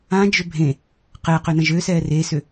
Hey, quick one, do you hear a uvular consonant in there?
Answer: yes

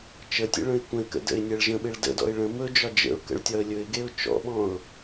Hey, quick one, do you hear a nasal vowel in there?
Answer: yes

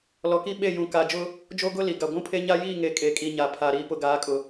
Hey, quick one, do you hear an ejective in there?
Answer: yes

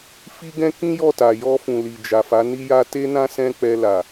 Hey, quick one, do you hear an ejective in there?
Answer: no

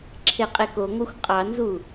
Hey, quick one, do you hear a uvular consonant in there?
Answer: yes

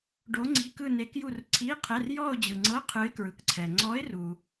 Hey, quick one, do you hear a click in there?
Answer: yes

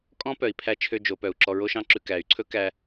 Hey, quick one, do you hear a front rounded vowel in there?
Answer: yes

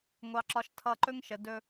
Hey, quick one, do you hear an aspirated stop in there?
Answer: yes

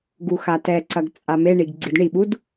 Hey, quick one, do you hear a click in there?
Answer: yes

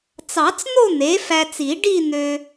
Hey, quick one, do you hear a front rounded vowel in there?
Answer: yes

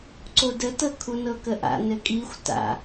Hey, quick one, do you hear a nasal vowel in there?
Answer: no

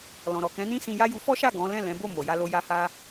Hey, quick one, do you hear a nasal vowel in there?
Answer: yes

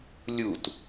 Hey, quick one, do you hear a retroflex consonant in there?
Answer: no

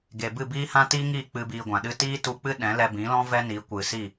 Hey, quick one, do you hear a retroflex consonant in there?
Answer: no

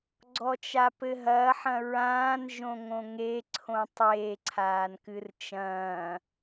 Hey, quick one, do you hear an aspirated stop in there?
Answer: yes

